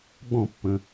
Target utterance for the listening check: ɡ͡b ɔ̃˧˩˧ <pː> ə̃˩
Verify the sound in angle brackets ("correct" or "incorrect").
correct